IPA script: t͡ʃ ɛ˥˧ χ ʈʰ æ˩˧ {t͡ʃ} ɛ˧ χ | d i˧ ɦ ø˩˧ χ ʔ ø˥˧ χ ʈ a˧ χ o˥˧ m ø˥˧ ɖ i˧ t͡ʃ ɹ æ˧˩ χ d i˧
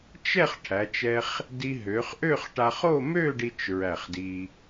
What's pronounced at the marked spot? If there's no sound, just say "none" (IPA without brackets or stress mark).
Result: t͡ʃ